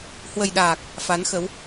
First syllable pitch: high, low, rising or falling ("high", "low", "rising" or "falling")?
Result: low